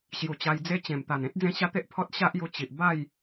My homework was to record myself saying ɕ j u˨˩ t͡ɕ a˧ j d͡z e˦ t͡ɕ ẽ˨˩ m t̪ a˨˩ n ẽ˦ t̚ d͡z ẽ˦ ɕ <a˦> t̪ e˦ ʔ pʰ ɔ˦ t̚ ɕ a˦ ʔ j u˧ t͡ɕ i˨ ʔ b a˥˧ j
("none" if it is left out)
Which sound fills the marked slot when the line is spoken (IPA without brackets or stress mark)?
a˦